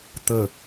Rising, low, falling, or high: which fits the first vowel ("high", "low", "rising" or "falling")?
low